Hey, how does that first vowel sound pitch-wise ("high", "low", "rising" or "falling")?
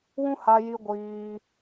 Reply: high